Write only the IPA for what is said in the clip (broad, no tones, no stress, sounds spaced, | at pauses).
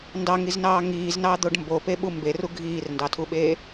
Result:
n d ɑ ŋ i z n ɑː ŋ iː z n ɑ d̪ o ɖ m b o p e ɓ u m b e r u ɡʱ iː r n d ɑ tʰ u ɓ eː